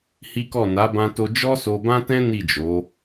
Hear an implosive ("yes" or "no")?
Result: no